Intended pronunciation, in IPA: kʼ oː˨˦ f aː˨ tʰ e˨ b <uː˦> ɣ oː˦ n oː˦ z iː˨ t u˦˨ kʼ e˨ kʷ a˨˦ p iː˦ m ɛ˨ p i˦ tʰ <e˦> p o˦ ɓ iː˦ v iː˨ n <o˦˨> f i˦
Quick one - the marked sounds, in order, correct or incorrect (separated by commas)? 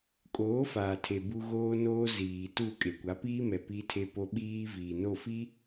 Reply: incorrect, correct, correct